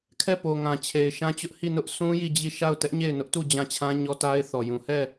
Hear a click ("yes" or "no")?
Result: no